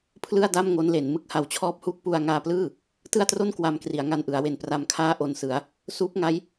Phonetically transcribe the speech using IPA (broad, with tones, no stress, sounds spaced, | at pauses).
pʰ l ɯ˥˩ a̯ d a˥˩ m ŋ o˦˥ n l e˩˦ n m ɯ˦˥ k̚ h a˨˩ w t͡ɕʰ ɔː˦˥ p̚ h uː˦˥ k̚ p u˧ a̯ ŋ aː˧ p l ɯː˥˩ | t ɯ˥˩ a̯ t r o˥˩ n k w a˧ m k r i˩˦ a̯ ŋ a˧ n ʔ ɯ˩˦ a̯ w e˨˩ n p r a˧ m kʰ aː˥˩ ʔ o˧ n s ɯ˩˦ a̯ | s uː˦˥ p̚ ŋ a˦˥ j